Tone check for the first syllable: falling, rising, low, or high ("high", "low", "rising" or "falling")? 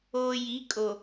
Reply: low